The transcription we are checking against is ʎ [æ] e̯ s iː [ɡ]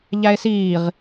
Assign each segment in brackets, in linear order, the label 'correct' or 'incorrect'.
correct, incorrect: ʁ

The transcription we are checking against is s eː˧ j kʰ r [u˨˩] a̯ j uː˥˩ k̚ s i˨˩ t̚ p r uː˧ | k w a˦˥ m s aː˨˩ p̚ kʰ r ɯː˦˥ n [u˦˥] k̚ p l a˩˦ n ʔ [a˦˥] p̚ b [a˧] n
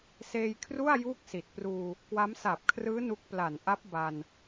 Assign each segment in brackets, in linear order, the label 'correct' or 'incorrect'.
incorrect: u˥˩, correct, correct, correct

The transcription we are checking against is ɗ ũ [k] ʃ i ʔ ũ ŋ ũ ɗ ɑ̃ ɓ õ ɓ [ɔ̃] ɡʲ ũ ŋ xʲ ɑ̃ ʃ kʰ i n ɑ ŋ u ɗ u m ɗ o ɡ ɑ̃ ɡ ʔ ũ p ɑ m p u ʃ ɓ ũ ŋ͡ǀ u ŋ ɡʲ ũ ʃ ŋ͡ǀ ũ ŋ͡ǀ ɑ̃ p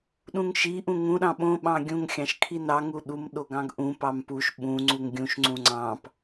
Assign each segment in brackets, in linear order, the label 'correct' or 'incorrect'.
incorrect: ŋ, incorrect: ɑ̃

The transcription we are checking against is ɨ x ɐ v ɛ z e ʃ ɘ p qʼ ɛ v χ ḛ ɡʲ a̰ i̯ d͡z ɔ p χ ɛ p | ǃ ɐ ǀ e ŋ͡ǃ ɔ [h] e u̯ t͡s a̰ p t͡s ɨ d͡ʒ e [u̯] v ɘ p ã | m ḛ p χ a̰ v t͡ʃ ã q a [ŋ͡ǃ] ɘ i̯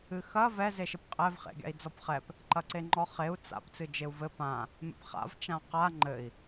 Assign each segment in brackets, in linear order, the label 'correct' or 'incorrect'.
incorrect: χ, correct, correct

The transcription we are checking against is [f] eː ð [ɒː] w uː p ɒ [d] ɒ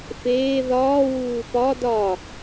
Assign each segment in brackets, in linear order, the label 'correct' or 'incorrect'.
correct, correct, correct

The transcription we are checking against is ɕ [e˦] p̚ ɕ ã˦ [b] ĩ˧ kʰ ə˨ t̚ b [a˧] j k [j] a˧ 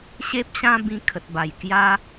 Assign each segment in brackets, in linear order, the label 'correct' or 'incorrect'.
correct, correct, incorrect: a˨˩, correct

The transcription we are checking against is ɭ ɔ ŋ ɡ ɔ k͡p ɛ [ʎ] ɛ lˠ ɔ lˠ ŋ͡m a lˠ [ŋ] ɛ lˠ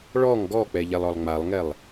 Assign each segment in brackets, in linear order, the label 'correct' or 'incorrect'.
correct, correct

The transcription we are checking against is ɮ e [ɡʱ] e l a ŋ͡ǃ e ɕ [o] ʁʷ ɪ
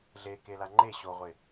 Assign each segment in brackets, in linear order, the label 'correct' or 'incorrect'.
incorrect: k, correct

